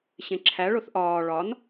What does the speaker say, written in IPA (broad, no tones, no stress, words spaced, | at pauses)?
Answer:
ɕẽǁʰæ ɭoθʔɒː ɭɒn